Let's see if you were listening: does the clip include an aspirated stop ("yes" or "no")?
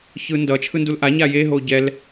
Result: yes